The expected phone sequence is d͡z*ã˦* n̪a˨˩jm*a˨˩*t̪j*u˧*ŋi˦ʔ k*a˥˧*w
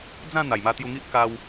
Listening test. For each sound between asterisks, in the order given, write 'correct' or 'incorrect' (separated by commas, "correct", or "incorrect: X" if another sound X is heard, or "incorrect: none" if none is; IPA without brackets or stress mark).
incorrect: ã˥˧, incorrect: a˧, correct, incorrect: a˧